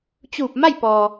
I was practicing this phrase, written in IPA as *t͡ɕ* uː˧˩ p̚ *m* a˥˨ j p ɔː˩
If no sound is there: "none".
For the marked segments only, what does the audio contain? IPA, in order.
t͡ɕ, m

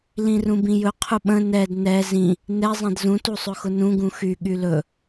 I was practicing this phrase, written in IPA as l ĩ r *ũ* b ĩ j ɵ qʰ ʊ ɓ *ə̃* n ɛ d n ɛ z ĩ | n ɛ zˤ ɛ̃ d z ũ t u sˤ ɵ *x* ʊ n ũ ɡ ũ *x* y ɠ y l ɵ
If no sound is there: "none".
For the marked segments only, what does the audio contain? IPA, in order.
ũ, ə̃, x, x

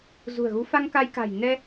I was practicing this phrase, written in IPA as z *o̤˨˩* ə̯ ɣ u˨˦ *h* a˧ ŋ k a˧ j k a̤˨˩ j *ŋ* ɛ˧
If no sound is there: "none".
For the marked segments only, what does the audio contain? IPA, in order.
ṳ˨˩, f, n

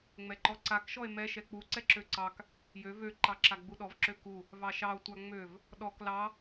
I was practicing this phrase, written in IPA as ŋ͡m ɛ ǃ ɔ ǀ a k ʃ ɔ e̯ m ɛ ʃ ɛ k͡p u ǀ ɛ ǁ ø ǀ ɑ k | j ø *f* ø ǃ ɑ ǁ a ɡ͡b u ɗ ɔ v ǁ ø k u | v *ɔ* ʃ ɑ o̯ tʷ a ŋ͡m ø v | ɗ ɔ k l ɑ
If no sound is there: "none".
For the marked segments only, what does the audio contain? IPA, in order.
v, ɑ

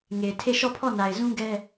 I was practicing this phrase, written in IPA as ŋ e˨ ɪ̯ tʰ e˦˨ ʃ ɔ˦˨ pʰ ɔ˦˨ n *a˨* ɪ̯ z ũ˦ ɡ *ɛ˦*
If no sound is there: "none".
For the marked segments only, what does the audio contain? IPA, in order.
a˨, ɛ˦

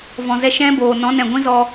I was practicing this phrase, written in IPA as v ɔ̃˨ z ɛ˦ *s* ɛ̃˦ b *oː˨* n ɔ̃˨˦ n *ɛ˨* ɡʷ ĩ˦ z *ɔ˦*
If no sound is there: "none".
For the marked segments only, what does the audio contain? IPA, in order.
ʃ, oː˨, ɛ̃˨, ɔ˧

